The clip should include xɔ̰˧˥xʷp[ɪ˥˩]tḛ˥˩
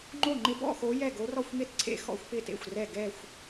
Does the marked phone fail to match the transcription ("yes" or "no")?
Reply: no